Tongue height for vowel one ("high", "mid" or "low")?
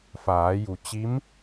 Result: low